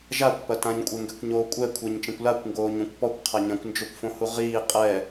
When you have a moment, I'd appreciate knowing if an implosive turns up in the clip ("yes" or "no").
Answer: no